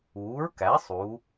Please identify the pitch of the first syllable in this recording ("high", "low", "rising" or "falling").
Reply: rising